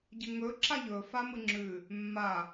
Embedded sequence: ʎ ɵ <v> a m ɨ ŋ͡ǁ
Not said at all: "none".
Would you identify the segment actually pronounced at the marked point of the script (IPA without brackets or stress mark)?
f